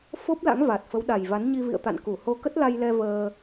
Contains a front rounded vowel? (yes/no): no